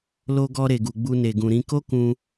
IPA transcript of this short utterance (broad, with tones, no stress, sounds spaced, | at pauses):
l o˧ ɡ ɔ˧ ɾ e˨ ɡ u˨ ɡ͡b u˧ n e˨ ɡ ũ˨ ɾ ĩ˧ k o˦ k ũ˧